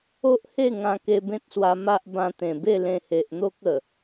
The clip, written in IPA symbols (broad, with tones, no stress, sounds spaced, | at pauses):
o˦ ʔ h e˥˧ ŋ ã˧ k e˧ b ẽ˦ t̚ s w a˧ m a˦ ʔ b ã˧ t̪ ẽ˨˩ b e˥˧ l ẽ˧ h e˨ ʔ n̪ o˦ k̚ ə˨˩